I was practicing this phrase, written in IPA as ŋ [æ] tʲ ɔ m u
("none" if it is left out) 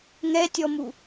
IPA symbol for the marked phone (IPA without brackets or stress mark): ɛ